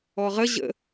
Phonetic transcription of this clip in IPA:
ɔ ʁ ə ʑ ə̰

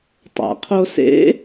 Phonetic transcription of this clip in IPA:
tˤ a̰ qʰ o s ḛ

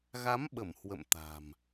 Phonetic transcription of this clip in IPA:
ɣ a˨˦ m ɓ ə˧˩ m h w ə̰˧˨ m t̪ a̤˨˩ m

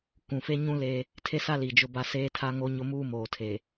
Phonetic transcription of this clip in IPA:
k ũ˨ f e˦ ɲ ũ˦ l e˦ | tʰ e˦ s a˦ l i˨ d͡ʒ ʊ˦ b a˦ s eː˦ tʰ a˦ ŋ o˦ ɲ ʊ˦ m uː˦ m oː˨ tʰ e˨

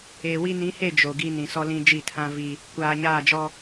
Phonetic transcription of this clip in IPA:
eː˨ w i˦ n ĩ˨˦ h e˦˨ d͡ʒ o˨ ɡ i˦ n ĩ˨ s ɔ˦ l ĩ˦ d͡ʒ i˦˨ tʰ ã˦ v i˦ | kʷ aː˨ ɲ aː˦˨ d͡ʒ ɔ˦

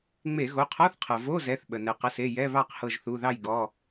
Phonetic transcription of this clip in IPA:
ŋ͡m e˧˩˧ ɣ o˩˧˩ qʰ ɔ˧˥˧ θ qʰ ɤ˩ v o˧˥˧ z ɛ˩˧˩ θ ɓ ə˩ n ɛ˩ q ə˩˧˩ s e˩˧˩ j ɛ˧˥˧ β ɑ˥˨ q h ɤ˧˩ ʒ θ u˩˧˩ ð ɑ˥˨ j ɡ ɔ˩˧˩

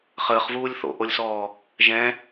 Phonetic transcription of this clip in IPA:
χ əː χ v uː lʲ θ o̰ ʔ o lʲ s ɔː | ʒ ɛ̃

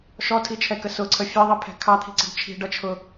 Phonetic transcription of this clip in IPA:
ʃ ɔ tʰ i t͡ʃʰ ɛ k ə s ʊ ǀʰ ə fʲ ɛ ðˤ i pʰ ɛ̤ kʰ ɑ t̪ʰ i̤ ǀ ə̤ ɖ t͡ʃʰ i̤ ɖ ʌ t͡ʃʰ ʊ

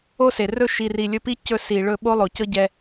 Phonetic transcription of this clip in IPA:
o˦ s e˨ r ɵ˦ ʃ i˨ r i˨ lʲ ɵ˧ p i˦ c ɵ˧ s i˨ ɭ ɵ˧ ɓ o˦ lˠ o˨ c ɤ˦ ɟ ɛ˧

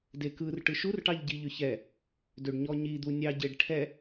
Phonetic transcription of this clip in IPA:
d e k ɯ r ʈ ɯ ʃ u r ʈ ɑ ʎ ɟ i ʎ ʏ ç ɛ | d ø ɖ ɲ ɔ ɲ i d̪ u nʲ ɑ ɟ e ɖ ʈʰ ɛ

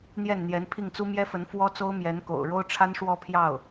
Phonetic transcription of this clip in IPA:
n̪ j ɛ˥˩ n n̪ j ɛ˧˥ n pʰ i˥˩ ŋ t͡s u˥ m j ɛ˥ f ə˧˥ n f w ɔ˥ t͡s o˥ ʊ̯ m j ɛ˧˥ n k o̰˨˩ ʊ̯ ɻ o˥ ʊ̯ ʈ͡ʂʰ a˥ n ʂ w ɔ˥˧ pʰ j ɑ˥˩ ʊ̯

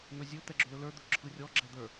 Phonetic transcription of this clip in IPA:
n̪ ɵ zʲ ɵ t̪ ɛ ɡ͡ǁ ʏ l ɵ l ə˞ d̪ ɵ ǁʰ ɯ rʲ ɔ ɡ͡ǁ ɛ d̪ ə˞

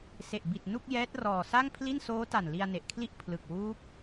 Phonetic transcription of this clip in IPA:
s e˨˩ ʔ b i˨˩ t̚ n u˥˩ k̚ j ɛː˦˥ t̚ r ɔː˨˩ s a˥˩ ŋ pʰ l i˥˩ n s oː˦˥ t a˨˩ n l i˧ a̯ n e˨˩ ʔ kʰ l i˥˩ ʔ pʰ l ɯ˨˩ k̚ w uː˦˥ p̚

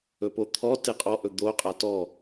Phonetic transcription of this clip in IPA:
ɵ p o t̪ʰ ɔ t e qʼ ɔ ʔ ɵ d̪ o qʼ a t ɔ

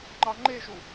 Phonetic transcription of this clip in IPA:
ŋ͡ǃ ɑ ŋ͡ǃ e ʒ u

